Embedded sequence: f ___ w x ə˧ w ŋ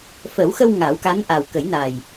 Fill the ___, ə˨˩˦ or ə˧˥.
ə˨˩˦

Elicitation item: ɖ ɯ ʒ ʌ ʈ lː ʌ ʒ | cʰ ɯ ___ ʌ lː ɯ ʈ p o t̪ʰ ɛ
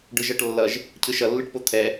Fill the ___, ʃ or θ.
ʃ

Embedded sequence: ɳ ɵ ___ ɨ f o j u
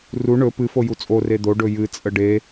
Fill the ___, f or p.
p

